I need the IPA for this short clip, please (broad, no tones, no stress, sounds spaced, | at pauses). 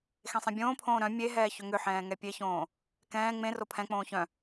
x ẽ sˤ ẽ bʲ õː pʰ õː ɾ œ̃ mʲ e ɦ ɛː ç ʏ ŋ ʏ ħ ɛ̃ː ŋ ɛ pʲ e ç õː | k ɛ̃ː ŋ͡m ẽ r o pʰ ɛ̃ k͡p õː ç œ̃